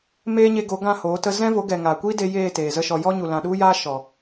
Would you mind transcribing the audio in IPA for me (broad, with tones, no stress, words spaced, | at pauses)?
meː˦ɲe˧ɡo˨˦ɡã˦˨ hoː˨˦tə˦ zɛ̃˦vo˨˦ɡɛ˨ ŋaː˨kʷiː˦de˧ jeː˦˨ teː˨zə˦ʃɔ˧ jɔ˦ɲu˨lã˨ ɗu˦jaː˦ ʃɔ˨